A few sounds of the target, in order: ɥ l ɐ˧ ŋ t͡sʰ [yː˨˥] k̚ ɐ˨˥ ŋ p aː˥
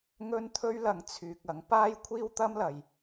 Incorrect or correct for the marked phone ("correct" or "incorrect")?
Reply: incorrect